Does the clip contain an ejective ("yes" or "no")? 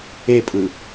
yes